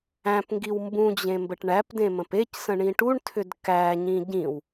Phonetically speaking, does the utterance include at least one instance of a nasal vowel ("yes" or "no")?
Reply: yes